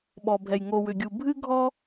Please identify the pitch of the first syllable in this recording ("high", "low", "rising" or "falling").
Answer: low